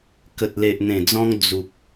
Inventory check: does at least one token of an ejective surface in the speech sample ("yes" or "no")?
no